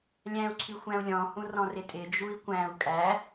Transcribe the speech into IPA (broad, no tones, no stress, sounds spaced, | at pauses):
lʲ æ̃ u̯ ǀʰ y xʷ æ̃ u̯ lʲ ɔ̃ h ũ r ɔ̃ r ɪ tʼ ɪ d͡ʒ u i̯ kʷ æ̃ u̯ kʼ æ